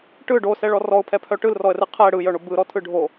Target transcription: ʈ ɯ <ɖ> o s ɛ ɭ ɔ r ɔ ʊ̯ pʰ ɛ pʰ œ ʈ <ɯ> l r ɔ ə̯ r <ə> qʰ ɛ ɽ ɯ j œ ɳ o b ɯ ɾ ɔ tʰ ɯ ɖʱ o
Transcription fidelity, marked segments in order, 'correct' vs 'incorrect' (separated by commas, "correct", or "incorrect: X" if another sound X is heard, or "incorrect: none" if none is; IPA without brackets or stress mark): correct, correct, incorrect: ɯ